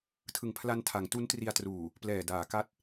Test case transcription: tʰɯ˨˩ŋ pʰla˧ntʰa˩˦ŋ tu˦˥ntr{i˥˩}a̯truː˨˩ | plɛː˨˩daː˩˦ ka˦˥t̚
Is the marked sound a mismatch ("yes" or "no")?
yes